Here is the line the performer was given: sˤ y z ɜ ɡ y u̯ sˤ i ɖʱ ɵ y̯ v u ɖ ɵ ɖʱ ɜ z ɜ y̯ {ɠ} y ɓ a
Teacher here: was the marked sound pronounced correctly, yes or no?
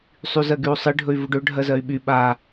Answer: no